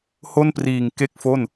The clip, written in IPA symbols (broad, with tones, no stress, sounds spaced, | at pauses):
h o˥˩ n p r iː˨˩ ŋ k e˥˩ k̚ f o˥˩ n